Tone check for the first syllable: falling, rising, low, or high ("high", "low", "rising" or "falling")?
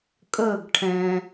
falling